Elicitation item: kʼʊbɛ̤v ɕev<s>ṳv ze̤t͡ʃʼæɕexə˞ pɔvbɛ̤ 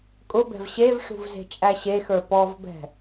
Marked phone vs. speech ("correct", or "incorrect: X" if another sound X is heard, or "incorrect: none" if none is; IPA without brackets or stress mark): incorrect: ʂ